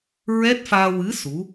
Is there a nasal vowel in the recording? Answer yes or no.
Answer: no